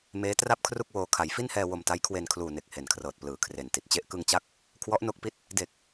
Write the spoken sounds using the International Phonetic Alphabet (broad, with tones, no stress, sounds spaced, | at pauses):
m eː˦˥ t r a˥˩ p̚ kʰ r u˥˩ k̚ w oː˧ kʰ a˩˦ j f i˥˩ n h ɛː˧ w o˧ m t a˦˥ j kʰ w e˧ n kʰ l uː˨˩ n e˨˩ k̚ h e˨˩ n kʰ r ɤː˨˩ t̚ p l ɯː˨˩ kʰ r e˨˩ n t i˨˩ t̚ t͡ɕ e˥˩ ʔ k ɯ˧ ŋ t͡ɕ a˦˥ k̚ | kʰ w ɔ˦˥ ʔ n o˦˥ k̚ p i˦˥ t̚ | d e˨˩ k̚